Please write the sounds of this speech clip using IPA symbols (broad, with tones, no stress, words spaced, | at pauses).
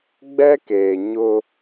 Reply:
ɡ͡bɛ˦keː˨ ɲʊ˦